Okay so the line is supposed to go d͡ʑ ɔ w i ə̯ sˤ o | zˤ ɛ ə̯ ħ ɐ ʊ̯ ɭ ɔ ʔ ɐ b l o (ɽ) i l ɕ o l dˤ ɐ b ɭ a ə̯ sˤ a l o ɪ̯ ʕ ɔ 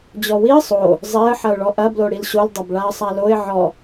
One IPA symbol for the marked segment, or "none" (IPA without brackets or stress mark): ɽ